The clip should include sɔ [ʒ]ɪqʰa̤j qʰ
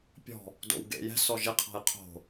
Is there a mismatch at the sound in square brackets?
no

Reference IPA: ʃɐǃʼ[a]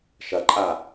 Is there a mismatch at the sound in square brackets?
no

